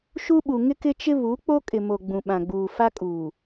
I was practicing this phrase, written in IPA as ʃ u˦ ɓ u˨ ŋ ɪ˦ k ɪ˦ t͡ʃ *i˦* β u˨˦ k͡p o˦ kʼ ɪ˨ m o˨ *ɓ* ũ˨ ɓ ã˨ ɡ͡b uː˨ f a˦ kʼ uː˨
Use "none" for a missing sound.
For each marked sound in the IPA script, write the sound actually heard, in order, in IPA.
ɪ˦, ɡ͡b

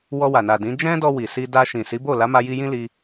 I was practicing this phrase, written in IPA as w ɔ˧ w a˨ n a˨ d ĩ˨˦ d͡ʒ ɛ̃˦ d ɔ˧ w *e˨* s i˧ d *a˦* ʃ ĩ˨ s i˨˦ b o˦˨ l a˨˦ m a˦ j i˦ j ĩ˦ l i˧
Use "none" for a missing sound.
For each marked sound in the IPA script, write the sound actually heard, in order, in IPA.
i˨, a˧

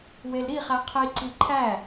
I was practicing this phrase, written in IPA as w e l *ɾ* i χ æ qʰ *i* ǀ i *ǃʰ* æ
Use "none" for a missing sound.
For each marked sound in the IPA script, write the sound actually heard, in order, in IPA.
ɾ, i, ǃʰ

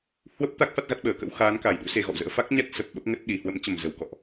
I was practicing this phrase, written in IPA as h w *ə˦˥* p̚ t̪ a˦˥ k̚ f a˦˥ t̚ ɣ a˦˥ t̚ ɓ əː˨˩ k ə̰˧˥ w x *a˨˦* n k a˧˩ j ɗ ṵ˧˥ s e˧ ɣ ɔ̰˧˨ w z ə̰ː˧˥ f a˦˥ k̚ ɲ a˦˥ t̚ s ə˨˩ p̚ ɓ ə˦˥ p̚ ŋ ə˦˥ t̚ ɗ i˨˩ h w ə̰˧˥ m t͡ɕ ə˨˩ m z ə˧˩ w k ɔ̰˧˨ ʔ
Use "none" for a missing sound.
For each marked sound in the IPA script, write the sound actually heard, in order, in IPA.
ə˦˥, aː˨˦

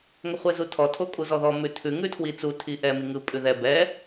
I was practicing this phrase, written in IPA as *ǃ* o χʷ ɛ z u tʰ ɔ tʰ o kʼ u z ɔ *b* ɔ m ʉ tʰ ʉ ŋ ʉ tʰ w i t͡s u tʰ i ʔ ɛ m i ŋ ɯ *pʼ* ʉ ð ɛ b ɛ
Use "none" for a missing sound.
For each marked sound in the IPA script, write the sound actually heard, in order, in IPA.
ŋ, ð, pʼ

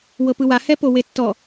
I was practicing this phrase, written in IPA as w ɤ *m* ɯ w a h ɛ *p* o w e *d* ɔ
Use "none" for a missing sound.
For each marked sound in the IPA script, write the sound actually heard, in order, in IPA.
p, p, tː

